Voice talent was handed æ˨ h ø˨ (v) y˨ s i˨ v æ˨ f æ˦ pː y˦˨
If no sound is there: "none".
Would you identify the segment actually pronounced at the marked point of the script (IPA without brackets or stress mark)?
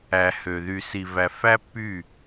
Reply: ð